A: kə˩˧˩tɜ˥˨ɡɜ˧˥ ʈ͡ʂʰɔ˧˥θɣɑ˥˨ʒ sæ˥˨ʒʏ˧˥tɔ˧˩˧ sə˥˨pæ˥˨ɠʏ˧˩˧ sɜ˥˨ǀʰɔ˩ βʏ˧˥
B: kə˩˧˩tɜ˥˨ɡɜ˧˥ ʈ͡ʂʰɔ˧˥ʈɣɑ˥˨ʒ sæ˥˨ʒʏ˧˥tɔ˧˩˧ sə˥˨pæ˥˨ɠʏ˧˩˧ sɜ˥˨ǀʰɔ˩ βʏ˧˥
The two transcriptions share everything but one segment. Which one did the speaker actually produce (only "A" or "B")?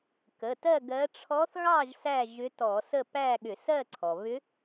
A